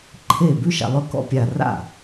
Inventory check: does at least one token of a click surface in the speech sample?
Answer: yes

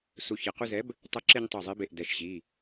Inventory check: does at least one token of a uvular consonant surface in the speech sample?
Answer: yes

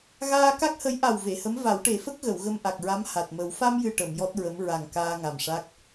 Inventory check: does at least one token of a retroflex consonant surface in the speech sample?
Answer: yes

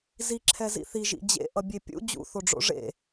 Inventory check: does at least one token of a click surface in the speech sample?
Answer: yes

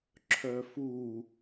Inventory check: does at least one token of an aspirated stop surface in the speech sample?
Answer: yes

